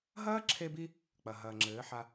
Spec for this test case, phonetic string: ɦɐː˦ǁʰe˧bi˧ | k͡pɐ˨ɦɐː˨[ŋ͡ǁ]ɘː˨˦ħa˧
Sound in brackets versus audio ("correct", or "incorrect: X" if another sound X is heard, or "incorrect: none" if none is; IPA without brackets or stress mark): correct